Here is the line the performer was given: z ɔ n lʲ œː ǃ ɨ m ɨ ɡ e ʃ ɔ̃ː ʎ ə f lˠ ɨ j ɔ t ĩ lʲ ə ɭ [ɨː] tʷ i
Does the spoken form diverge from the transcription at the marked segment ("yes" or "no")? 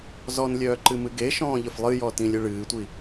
no